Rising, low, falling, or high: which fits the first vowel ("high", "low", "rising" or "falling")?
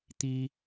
high